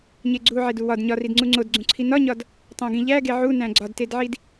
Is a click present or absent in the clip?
present